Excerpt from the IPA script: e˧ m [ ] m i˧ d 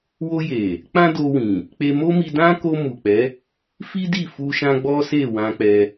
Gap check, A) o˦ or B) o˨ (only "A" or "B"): A